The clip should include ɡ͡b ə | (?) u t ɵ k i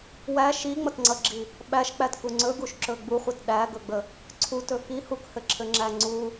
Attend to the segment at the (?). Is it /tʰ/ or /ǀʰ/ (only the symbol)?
ǀʰ